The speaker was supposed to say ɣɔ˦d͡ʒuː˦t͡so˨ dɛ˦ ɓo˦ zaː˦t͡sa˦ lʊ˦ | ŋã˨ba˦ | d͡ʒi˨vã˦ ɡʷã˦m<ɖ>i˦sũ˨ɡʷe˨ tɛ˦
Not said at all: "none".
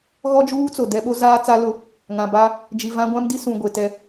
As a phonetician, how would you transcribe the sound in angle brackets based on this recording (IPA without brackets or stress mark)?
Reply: d